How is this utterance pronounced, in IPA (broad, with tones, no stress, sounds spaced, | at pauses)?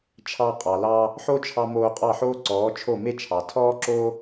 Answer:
t͡ʃʰ ɑ˧ qʼ ɑ˩ l ɑ˧ | ħ o˥ t͡ʃʰ ɑ˧ m oː˧ qʼ ɑ˥˩ ħ oː˥ ǀ ɔː˩˥ t͡ʃʰ o˥˩ m e˥ t͡ʃʰ ɑ˩ tʰ ɔː˥ ǁ o˥